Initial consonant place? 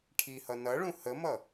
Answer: retroflex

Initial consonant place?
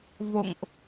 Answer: labial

